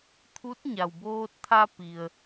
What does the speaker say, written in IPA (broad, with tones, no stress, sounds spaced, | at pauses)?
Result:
t̪ʰ u˧˥ t̚ ɲ a˩ w b oː˧ t̚ t̪ʰ a˧ p i˩ ə̯